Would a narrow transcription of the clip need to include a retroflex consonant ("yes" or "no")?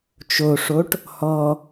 yes